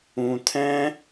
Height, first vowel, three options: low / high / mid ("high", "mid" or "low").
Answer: high